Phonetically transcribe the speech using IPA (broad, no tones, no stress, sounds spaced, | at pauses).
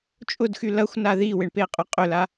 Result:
t͡ʃʼ ʊ d x y l ɐ xʷ n a ð i w ɪ ɳ p e qʼ ʊ qʼ ʏ l a